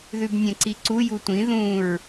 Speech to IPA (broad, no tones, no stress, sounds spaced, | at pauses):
ð ʉ b nʲ ɛ̃ ǀ i ǀ u j u tʷ ĩ ð ũ ɹ